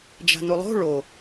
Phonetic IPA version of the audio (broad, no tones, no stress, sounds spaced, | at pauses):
d͡ʒ a̤ n u lˠ o̤ ɭ o